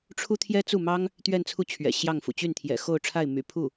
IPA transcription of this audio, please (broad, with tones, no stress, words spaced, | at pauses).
ʈ͡ʂʰu˥t̪ʰjɛ˥ t͡su˥˩mɑ˥ŋ | t̪ɥɛ˥˧nt͡sʰu˥˩ t͡ɕʰɥɛ̰˨˩ɕjɑ˥˩ŋfṵ˨˩ t͡ɕy˥˩nt̪ʰjɛ̰˨˩ xo˥˧ʊ̯ʈ͡ʂʰa˥˩ɪ̯ my̰˨˩pʰu˥˩